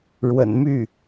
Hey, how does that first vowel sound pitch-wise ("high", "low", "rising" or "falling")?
low